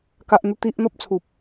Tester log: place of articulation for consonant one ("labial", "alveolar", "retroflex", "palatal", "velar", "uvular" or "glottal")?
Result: velar